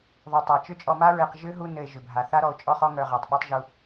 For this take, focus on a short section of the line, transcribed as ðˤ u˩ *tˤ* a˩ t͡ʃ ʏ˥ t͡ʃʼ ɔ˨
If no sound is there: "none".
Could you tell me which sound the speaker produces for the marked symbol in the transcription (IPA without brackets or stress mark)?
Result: tˤ